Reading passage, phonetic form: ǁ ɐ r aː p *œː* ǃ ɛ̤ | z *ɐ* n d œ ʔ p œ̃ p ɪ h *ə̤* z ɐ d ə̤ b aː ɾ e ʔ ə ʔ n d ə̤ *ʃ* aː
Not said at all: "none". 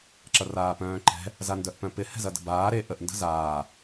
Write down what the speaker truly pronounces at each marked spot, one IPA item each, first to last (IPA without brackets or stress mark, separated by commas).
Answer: œ̃ː, a, ɛ̤, z